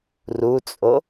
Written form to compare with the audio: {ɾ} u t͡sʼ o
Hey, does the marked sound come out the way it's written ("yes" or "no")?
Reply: no